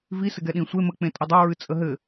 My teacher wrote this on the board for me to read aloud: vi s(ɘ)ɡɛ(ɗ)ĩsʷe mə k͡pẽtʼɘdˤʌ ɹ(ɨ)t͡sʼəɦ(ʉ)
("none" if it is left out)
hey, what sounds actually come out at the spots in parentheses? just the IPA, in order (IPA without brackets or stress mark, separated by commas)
ɘ, ɗ, ɨ, ɘ